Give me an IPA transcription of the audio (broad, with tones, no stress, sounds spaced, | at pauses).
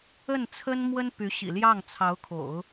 ə˥˩ n t͡sʰ ə˥ n m w ə˥ n p y˧˥ ɕ ḭ˨˩ l j ɑ˥˩ ŋ t͡sʰ ɑ˧˥ ʊ̯ kʰ o̰˨˩˦ ʊ̯